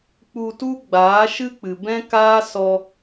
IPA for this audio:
k͡p u˧ t u˦ ɡ͡b aː˨˦ ʃ ɨ˦ k͡p ɨ˨ b ɛ̃˦ k aː˦ s ɔ˧

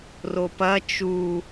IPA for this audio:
r o p ɐ t͡ʃ u

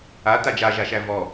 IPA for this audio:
a t a d͡ʒ a ʒ a ʃ æ v ɔ

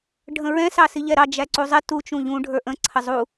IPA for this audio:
ɖʱ ə̃ ɹ ɛ̃ s ɑ s i ʎ ɛ ɾ ɑ d͡ʒ æ ǀ u zˤ ɪ t u t͡ʃ ũ ʎ ũ ɖʱ ə˞ ʔ ə̃ ǀʰ ə zˤ u

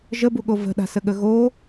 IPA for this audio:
ʒ ə b u ɠ o v ə̤ ɗ a̤ s ə ɠ ə ɣ o

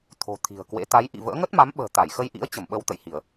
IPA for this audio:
t̪ʰ o̤˨˩ t̪ʰ i̤˨˩ ə̯ k w ḛ˧˥ t̪ a˨˦ j ʔ ḭ˧˨ v ə̰ː˧˥ ŋ ə˦˥ t̚ m a˨˦ m ɓ ə̤ː˨˩ t̪ a˧˩ j x ə˧ j ʔ ḭ˧˥ ə̯ t͡ɕ ə˧˩ m ɓ ə˧ w t̪ ə̰˧˨ j h i˧˩˨ ə̯

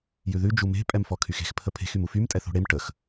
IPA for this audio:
j ʉ ð ʉ d͡ʒ u m e̤ pʼ ɛ m f ɔ kʰ y x e̤ x pʰ ə pʰ e̤ x y m u f y m tʼ ɛ θ o̤ ɽ e m ʈ ə x

